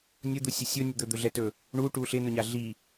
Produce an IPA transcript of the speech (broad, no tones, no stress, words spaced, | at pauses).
nʲʊd̪usʲʊ sʲʊnʲʊ d̪ɵd̪ɵɮɛtɵ | ɳuʈu ɬɪnʊɲa ɮi